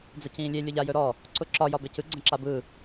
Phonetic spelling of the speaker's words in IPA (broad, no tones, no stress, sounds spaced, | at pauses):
d͡z ə c ĩː lʲ e lʲ ʊ ʎ a j ɵ ɾ ɔ | ǀ ʊ ǁ ɒ j ɒ b e c ɯ ɡ͡ǀ ə̃ ǁ a b ɯ